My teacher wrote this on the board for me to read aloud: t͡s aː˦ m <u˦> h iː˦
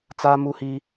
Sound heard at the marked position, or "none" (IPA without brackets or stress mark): u˦